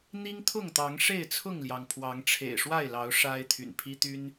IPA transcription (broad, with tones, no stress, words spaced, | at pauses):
n̪i˦ŋt̪ʰʊ˥˨ŋt̪ɑ˨˦ŋ ʂe˥˨ɪ̯t͡sʰʊ˥˨ŋljɑ˩ŋpʰwɑ˨˦ŋ ʈ͡ʂʰḛ˨˩ɪ̯ʂwa˥˨ɪ̯lɑ˨˦ʊ̯ ʂa˦ɪ̯ t̪ʰy̰˨˩npʰi˦t̪y˦n